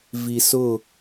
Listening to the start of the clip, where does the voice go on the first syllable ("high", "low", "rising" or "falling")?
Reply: low